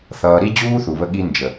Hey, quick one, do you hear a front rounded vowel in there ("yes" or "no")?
no